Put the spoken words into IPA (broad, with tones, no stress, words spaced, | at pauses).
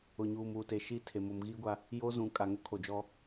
ʊ˨ɲuː˨m uː˨te˨ʃi˦˨ tʰe˨ mo˨mɣiː˦ɡʷa˦ | jo˦zũ˨ kʼa˨ ŋʊ˦kʰo˨d͡ʒɔ˦